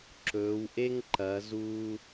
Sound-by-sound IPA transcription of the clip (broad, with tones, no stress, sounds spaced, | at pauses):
ǁ ɵː˩˧ w ʔ e˥ ŋ ǃ ɐ˩˧ z u˧